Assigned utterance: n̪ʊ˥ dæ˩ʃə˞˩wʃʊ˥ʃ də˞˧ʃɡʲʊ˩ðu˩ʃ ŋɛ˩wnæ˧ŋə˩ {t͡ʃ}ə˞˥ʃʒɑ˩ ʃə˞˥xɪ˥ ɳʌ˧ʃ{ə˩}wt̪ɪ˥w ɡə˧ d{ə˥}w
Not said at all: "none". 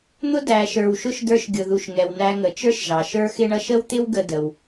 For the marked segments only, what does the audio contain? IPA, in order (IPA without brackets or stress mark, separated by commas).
t͡ʃ, ə˥, ə˩